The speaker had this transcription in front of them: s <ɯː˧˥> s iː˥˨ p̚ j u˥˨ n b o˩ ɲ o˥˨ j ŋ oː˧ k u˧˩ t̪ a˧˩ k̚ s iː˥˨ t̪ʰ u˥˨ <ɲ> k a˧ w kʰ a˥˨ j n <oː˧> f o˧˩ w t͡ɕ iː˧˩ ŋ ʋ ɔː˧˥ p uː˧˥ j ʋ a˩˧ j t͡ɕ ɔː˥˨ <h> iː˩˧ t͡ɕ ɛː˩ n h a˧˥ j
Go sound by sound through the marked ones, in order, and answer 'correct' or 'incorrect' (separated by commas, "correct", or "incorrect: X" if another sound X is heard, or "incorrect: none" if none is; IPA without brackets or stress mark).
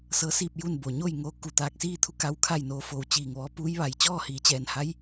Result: incorrect: ɤː˧˥, incorrect: none, correct, correct